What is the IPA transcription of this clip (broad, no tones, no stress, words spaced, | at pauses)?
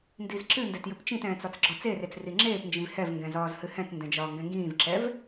ndizǁɨndɛt jɨpt͡ʃĩtɛ̃ːt͡s ɒt͡sɡ͡ǁɒt͡seret͡s riŋ͡ǁeːpnd͡ʒĩv hɛvŋɡɛ̃ zɒːzhɨhɛ̃tndɛ̃ d͡ʒɒːŋɡɛ̃ŋɡĩːvǁɛv